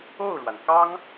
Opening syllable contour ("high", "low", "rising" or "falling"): falling